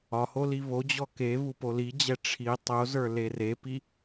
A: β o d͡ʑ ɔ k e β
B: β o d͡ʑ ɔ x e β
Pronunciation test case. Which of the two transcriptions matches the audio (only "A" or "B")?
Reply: A